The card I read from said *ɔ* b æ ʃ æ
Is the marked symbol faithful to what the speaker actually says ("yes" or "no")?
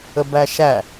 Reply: no